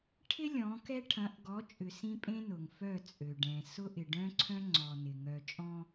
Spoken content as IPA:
ʈʰ ɪ˦ lʲ ɔ̃˨˦ k ɛ˦ ʈʰ ɐ̃˨˦ ʔ ɡ ɔ˨˦ t͡ʃʼ ʏ˨ s ĩ˦ pʼ ẽ˦ n ʊ˨ ŋ f œ˦˨ t͡sʼ ø˨ ɖ ɛ̃˨ s ʊ˦ ʔ ɪ˨ ɖ œ̃˦ ǀʰ œ̃˦ ŋ͡ǀ ɔ˨ n ɪ˨ ŋ œ˨ t͡ʃʼ ɔ̃˦

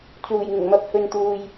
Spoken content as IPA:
t͡s uː˨˩ j ŋ ɪ˨˩ ŋ m ɐ˧ p̚ h ɵ˨ n t̪ uː˨ j

